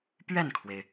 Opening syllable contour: falling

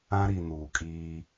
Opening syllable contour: high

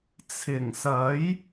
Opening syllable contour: low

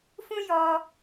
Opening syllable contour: high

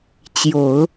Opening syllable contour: low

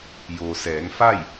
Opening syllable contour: low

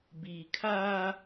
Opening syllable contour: low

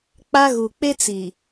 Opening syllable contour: high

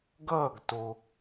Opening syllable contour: falling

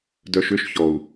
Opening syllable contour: low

